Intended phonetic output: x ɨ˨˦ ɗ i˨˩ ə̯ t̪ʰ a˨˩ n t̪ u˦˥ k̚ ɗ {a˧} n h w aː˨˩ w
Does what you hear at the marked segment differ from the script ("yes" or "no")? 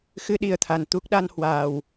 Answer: no